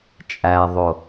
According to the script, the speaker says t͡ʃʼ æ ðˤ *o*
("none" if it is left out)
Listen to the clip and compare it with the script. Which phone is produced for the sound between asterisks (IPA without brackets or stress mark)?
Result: o